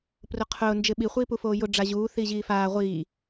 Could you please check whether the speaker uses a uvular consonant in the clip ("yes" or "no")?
yes